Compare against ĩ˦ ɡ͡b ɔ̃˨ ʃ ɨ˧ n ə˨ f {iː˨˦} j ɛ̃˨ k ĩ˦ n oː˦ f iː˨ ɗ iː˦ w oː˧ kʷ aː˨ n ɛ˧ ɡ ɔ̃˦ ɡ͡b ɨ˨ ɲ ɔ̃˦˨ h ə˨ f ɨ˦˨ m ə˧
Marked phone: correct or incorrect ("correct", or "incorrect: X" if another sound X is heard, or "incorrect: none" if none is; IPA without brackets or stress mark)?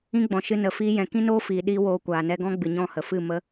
incorrect: iː˧